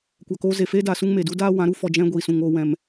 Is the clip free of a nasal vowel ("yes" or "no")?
no